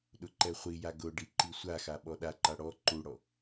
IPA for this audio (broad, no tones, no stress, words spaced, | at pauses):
ɗʊǃɛχʷija ɡʊɖi ǃisʷaxa ɓɔɗaǃa ɽɔ ǃuɽɔ